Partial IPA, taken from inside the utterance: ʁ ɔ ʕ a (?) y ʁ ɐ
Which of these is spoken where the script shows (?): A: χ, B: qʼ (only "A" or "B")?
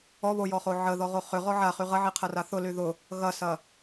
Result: A